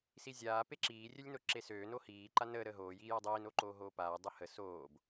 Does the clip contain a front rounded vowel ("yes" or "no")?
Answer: yes